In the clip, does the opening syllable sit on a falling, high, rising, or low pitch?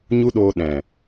high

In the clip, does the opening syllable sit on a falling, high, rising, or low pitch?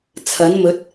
rising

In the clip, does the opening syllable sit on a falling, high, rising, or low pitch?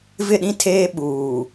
falling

